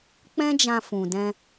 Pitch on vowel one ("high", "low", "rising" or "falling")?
high